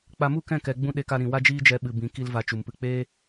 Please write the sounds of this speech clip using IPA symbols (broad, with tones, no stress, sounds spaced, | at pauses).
k͡p a˧ m u˦˨ k ɛ̃˦˨ k ɛ˨ ɡ͡b ũ˦ ɗ e˧ k a˧ ɾ ĩ˨ w a˦ d͡ʒ iː˦ d͡ʒ ɛ˧ ɓ ɨ˨ b ĩ˨ k i˧ l v a˧ t͡ʃ u˨ m p ɨ˧ k͡p eː˦